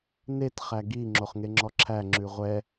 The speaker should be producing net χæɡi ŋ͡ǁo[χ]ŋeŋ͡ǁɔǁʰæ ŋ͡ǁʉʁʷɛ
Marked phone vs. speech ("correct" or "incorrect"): correct